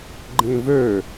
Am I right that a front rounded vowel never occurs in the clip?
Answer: no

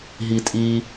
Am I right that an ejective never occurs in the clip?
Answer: no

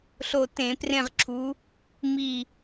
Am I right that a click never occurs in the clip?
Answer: no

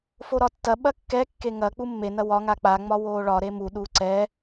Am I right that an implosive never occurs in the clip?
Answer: no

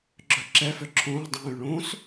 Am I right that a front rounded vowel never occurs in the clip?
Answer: no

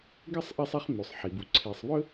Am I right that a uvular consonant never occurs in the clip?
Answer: no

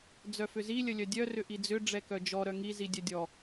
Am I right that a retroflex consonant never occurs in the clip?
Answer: no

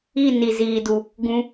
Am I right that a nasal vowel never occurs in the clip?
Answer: no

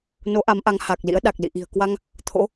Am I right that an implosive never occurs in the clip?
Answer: no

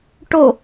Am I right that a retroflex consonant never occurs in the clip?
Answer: no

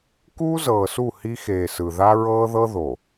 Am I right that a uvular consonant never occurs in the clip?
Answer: yes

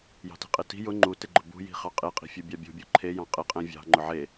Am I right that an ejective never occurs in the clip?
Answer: no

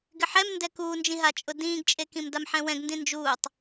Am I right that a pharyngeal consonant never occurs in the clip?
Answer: no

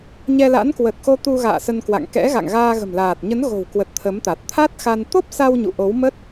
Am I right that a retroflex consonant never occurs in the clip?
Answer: yes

